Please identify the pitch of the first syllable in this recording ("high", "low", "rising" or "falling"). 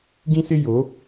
high